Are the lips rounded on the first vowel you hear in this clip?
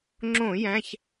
yes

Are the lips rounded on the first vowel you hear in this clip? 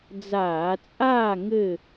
no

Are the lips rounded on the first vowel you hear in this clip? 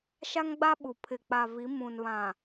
no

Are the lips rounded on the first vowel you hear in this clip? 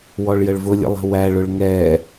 yes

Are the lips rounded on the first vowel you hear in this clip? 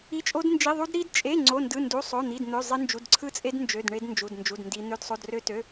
no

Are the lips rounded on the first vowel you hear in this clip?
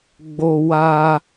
yes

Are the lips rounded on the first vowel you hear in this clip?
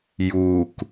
yes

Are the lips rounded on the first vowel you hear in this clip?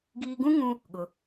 no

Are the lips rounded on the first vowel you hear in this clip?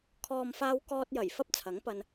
yes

